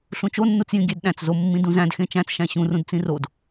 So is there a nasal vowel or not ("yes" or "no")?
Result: yes